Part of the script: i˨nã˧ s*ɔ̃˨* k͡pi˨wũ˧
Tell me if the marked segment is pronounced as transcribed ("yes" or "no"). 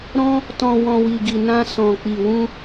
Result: yes